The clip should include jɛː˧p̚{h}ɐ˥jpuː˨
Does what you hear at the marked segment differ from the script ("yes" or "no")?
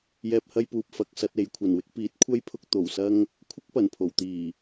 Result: no